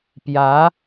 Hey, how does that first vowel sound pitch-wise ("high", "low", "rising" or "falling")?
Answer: rising